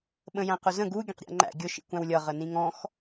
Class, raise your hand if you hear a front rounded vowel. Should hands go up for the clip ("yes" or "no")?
no